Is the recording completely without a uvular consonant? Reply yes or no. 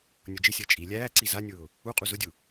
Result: no